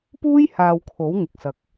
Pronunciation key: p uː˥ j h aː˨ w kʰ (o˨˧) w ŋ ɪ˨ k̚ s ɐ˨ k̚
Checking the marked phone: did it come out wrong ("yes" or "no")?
yes